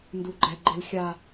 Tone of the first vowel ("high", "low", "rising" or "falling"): high